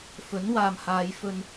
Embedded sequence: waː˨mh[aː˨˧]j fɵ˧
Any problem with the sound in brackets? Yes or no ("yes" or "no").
no